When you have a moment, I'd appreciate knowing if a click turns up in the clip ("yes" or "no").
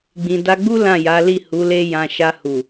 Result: no